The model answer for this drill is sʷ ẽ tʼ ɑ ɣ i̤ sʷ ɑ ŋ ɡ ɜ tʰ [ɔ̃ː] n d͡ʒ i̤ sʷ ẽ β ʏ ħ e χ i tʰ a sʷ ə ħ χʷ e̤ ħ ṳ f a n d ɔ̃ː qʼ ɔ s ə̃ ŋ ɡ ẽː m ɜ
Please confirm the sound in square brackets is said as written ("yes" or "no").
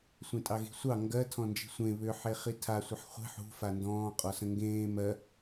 no